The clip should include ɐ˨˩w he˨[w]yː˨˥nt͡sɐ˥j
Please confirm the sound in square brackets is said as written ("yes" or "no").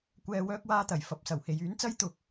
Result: no